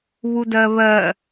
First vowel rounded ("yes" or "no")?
yes